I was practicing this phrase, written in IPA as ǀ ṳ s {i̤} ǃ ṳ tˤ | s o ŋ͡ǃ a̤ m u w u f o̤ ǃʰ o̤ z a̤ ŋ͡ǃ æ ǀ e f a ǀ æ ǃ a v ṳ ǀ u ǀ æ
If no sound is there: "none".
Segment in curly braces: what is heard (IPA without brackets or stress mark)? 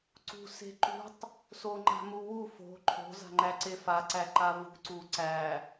e̤